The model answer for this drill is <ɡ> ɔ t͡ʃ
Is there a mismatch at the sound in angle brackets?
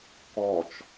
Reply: yes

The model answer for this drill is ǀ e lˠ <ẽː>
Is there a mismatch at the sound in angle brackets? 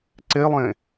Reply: yes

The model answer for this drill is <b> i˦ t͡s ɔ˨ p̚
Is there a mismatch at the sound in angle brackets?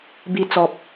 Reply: no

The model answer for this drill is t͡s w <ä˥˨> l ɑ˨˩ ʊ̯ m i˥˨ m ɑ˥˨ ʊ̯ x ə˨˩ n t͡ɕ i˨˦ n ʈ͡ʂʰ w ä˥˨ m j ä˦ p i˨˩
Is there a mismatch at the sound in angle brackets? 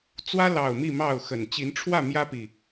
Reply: yes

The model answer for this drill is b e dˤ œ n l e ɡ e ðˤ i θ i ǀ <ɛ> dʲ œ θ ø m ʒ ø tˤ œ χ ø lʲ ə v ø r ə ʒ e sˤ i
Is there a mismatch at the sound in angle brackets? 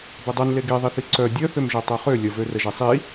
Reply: yes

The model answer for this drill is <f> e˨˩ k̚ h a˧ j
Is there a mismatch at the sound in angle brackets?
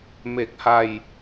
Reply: yes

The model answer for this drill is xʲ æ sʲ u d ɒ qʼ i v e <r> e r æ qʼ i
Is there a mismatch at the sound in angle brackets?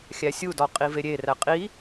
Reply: yes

